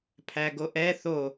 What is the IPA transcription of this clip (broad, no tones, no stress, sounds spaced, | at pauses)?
pʰ æ ɡ o ʔ ɛ θ o